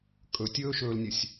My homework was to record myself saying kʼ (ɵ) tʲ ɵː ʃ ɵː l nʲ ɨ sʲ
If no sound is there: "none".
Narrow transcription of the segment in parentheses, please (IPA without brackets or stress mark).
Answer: ɵ